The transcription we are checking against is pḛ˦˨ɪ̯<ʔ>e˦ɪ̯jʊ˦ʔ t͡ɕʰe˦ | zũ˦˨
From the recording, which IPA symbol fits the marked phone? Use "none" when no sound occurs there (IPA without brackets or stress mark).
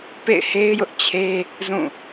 h